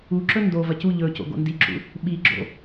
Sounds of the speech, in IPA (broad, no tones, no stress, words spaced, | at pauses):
uǁɵ ndo vɐcu ʎɵ co̰ɡo̰ndiǁṵ | ɓiɡ͡ǁo̰